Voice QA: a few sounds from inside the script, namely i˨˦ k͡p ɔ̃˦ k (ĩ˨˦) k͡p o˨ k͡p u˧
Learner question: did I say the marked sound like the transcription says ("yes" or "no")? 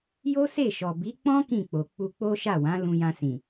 no